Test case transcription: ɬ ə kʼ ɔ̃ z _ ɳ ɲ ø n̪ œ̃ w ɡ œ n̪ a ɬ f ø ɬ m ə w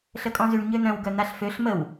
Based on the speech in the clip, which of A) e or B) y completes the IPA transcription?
B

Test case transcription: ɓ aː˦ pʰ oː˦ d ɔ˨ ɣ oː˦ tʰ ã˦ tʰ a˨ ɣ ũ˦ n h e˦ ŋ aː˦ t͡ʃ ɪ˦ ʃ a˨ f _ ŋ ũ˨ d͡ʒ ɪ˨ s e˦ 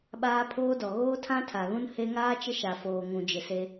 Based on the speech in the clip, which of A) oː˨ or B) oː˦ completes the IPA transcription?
A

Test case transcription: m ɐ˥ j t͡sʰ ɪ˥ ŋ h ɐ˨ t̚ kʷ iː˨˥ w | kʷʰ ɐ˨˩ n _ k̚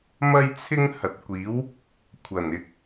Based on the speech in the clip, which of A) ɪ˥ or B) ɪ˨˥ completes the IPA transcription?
B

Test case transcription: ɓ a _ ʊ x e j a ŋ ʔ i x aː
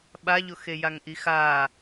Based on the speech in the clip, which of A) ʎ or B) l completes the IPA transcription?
A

